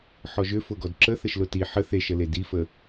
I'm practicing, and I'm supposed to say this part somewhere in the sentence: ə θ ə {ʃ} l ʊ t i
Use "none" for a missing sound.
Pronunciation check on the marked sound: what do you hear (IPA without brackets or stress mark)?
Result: ʃ